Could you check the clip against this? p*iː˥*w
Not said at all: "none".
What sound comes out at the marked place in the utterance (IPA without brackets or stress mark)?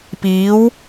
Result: iː˨˥